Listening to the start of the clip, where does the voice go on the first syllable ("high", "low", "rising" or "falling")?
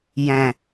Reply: low